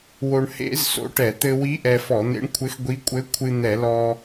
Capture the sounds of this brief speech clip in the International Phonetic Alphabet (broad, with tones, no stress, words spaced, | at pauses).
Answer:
wo˧ɳ hḛ˧˥z so̰˧˥ʈɛ˧˩˧ t̪ɘ˧wi˧˥ ʔɛ˧fɔ˧˩˧n̪ḛ˧˥ɳkʷʰɘ˧˥x ɡʷi˧˥ kʷʼɘ˧˥kʷʰɨ˧ n̪ɛ˧˩˧lɔ˧